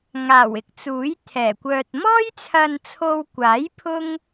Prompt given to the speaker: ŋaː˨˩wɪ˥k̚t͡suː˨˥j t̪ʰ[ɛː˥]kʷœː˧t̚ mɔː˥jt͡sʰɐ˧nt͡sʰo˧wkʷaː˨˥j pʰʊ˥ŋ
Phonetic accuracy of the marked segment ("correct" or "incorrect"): incorrect